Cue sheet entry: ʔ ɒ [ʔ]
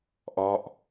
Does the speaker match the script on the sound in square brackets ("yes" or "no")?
yes